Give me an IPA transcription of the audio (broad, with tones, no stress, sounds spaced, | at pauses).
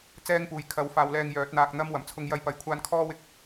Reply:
t͡s ɛː˥ ŋ p uː˨ j kʰ ɐ˨˥ w f aː˨˧ w l ɛː˧ ŋ j œː˨˥ t̚ n̪ aː˧ k̚ n̪ ɐ˥ m w ɐ˨˩ m t͡sʰ ʊ˧ ŋ j ɐ˧ j p ɐ˨˥ j kʷʰ aː˥ n kʰ ɔː˥ w ɪ˧ k̚